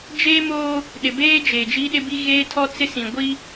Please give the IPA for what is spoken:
d͡ʒ eː˦ m oː˦ | ɗ ɪ˨ b eː˦ d͡ʒ e˨ d͡ʒ i˦ ɗ ɪ˦ b i˦ ɣ eː˦ tʰ ɔ˦ t͡s ɪ˦ s ĩ˨ ɡʷ i˦

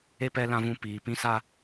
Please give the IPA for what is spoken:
e˦ p ɛ˦ l ã˦ v ũ˦ p iː˧ p ĩ˦ s a˦

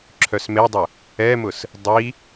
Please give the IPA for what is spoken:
ǁʰ œ s m e dˤ ʊ | ɛ m ʊ s | dˤ i

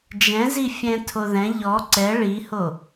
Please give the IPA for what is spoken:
d͡ʒ ɛ̃ z i fʲ ɛ̃ tʰ o ð ɛ̃ ʎ ɔ ǀ ɛ ɭ i h o

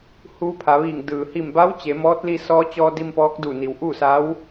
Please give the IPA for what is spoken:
h uː˧ pʰ a˩˧ ʋ iː˧˩ ŋ d ɯː˩ h i˧˩ m b a˧˥ w t͡ɕ e˩˧ m ɔː˧˥ t̚ l i˧ s ɔː˧˥ t͡ɕ ɔː˧ d i˧ m p ɔː˧˥ k̚ d u˧˩ n i˩ w ʔ uː˥˨ s a˧˥ w

